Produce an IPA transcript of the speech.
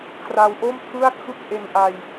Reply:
kʰra˧w ʔo˥˩mtʰɯ˥˩a̯kʰɯ˥˩k̚ ʔe˧nʔa˧j

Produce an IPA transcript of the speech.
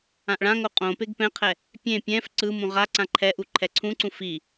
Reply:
ãʔɭãŋo qʼõ peɡpɛ̃qʰɛ | pʲẽ pʲɛ̃f ǀɯmũ ʁaǀã ǃʰɛʔu ǃʰɛǀʰũǀũ fi

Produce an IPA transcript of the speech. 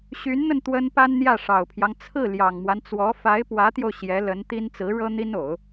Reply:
ɕy˧˥nn̪ə˧n t̪wə˥n pa˥nn̪jä˥˩ ʂɑ˨˩ʊ̯pʰjɑ˦ŋ t͡sʰɹ̩˥˩ ljɑ˨˩ŋmwa˦nt͡swɔ˧˥ fa˧˥ɪ̯pwä˧˥t̪jo˧ʊ̯ ɕjɛ˧˥lə˧˥nt̪i˥n t͡sɹ̩˧˥ɻɤ˥ n̪i˥no˨˩˦ʊ̯

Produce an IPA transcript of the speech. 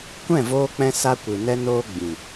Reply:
kʷɛ̃˦˨voː˧k͡pɛ̃˧ sa˦kʷɨ˨nɛ˦ noː˦ɡ͡bĩ˨

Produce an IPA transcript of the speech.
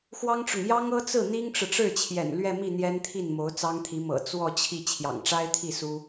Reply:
xwɑ˥ŋʈ͡ʂʊ˨ŋ jɑ˥ŋɤ˥t͡sɹ̩˥˩ n̪i˥ŋʈ͡ʂɻ̩˨ʈ͡ʂɻ̩˥˩t͡ɕʰjɛ̰˨˩n lɥɛ˥˧mi˥˩ n̪jɛ˥nt̪ʰi˥˩n mo˧˥ʊ̯t͡sɑ˥ŋt̪ʰi˧˥ mɤ̰˨˩ t͡swɔ˥˧t͡ɕʰi˥˩ t͡ɕʰjɑ̰˨˩ŋʈ͡ʂa˥ɪ̯t̪ʰi˥˩ su˥

